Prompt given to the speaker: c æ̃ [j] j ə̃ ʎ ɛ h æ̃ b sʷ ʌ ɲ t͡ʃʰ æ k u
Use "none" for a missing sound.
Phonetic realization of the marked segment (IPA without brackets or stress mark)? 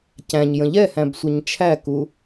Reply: ɲ